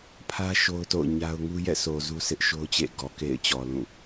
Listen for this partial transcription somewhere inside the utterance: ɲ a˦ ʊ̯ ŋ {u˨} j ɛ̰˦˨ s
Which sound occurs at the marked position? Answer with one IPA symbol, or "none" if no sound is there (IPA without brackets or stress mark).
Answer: u˦